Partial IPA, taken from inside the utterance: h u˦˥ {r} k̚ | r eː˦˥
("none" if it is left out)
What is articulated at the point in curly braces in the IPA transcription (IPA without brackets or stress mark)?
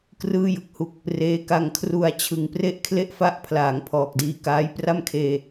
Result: none